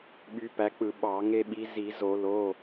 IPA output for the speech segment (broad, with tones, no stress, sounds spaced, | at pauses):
ɓ y˨˦ p æ˨˦ k͡p ɯ˧˩˧ ɓ ɑ˧˩˧ ŋ e˦ ɓ i˨˦ z i˧˩˧ z o˧˩˧ l o˩˧˩